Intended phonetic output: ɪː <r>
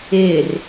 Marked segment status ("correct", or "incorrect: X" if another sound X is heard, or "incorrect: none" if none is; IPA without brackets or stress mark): correct